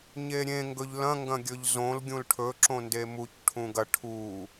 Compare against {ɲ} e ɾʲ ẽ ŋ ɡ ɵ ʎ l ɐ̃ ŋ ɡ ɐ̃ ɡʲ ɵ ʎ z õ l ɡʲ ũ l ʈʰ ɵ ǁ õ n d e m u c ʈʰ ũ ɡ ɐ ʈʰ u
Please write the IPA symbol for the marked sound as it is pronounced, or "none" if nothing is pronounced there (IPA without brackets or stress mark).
ɲ